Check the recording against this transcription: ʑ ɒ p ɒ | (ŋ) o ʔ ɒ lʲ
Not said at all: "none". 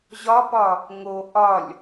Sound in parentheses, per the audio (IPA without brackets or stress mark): ŋ